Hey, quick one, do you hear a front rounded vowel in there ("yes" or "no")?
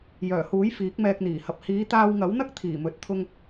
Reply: yes